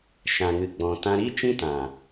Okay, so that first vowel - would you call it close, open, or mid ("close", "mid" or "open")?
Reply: open